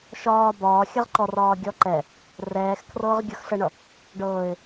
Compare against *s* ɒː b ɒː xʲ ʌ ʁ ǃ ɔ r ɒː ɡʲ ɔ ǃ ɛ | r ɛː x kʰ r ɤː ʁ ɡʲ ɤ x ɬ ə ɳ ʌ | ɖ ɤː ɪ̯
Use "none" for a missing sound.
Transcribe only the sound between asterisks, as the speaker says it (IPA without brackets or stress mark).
ʃ